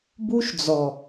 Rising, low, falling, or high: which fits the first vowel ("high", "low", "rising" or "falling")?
high